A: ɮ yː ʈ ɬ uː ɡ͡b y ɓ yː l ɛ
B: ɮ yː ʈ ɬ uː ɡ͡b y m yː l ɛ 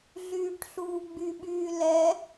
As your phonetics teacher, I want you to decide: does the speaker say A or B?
A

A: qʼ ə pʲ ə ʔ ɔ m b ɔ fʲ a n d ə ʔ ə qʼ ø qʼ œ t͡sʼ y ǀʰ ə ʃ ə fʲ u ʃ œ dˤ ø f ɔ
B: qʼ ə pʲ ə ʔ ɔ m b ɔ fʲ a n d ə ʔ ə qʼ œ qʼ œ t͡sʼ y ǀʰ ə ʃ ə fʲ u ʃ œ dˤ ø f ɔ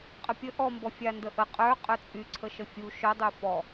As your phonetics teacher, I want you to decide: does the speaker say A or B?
B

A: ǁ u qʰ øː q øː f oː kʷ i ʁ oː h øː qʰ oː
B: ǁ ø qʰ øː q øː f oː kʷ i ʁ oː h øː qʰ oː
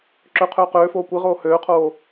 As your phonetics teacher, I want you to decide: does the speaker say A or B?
B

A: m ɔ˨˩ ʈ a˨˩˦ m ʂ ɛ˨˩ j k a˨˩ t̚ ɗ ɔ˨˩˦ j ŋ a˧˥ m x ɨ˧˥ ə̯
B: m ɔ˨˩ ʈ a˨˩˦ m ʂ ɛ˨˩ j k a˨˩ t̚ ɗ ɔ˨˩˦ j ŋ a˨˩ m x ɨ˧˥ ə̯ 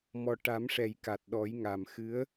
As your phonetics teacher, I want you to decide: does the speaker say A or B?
B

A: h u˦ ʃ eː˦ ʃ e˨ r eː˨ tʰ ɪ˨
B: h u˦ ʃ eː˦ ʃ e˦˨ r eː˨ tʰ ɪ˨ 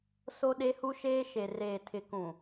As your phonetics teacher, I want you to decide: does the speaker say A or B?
A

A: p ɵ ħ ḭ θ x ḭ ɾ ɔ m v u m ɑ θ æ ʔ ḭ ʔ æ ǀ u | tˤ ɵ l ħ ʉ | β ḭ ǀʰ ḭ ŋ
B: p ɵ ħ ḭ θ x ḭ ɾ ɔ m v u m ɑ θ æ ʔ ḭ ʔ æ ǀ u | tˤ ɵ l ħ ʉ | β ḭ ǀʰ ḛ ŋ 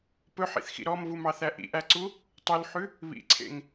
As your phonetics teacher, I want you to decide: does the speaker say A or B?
B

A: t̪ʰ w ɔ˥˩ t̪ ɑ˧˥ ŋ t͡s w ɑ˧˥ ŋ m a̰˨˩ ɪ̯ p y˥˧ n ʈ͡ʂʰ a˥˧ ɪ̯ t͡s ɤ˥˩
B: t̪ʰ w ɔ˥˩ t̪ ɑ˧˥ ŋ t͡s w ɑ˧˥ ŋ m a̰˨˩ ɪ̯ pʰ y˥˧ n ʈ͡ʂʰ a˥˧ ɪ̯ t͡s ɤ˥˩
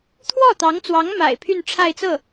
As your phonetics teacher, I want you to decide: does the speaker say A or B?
B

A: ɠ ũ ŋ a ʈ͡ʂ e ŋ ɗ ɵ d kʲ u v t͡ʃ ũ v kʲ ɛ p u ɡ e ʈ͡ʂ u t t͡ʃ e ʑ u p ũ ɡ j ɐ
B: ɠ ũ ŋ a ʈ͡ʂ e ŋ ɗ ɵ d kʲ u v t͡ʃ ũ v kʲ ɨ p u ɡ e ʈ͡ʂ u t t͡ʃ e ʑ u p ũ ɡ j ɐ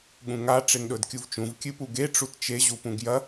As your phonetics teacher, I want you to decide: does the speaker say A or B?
B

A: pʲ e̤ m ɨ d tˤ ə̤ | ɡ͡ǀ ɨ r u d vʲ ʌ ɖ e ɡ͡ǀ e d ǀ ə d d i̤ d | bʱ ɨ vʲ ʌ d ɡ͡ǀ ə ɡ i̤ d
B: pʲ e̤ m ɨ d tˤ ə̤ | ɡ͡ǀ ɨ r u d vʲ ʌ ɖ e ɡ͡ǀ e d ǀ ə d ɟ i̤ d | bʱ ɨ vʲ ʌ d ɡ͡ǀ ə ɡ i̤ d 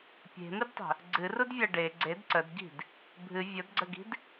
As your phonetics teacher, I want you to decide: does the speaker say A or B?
B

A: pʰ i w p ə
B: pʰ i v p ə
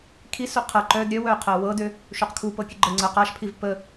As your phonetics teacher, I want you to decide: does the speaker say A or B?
B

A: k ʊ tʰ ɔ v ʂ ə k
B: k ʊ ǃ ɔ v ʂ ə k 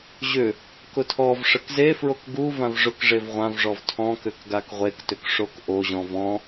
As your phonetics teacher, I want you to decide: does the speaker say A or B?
A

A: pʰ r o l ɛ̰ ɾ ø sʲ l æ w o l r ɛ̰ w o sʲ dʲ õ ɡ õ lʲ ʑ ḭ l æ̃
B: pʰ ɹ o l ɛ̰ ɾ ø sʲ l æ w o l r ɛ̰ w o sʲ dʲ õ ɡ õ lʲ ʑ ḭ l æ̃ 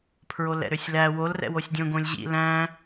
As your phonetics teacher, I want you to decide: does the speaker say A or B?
B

